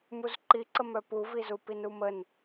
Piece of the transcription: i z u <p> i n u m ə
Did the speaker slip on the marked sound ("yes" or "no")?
no